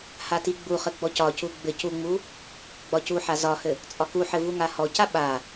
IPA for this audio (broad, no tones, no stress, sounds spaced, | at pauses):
h a t i ɡ͡b u χ ɘ ɡ͡b ɔ c ɒ c u ɡ͡b ɘ c u ŋ͡m u | ɡ͡b ɒ c u ħ a z ɒ h ɘ | t͡sʼ ɒ k u ħ ɘ v u ŋ a h ɔ c a ɓ a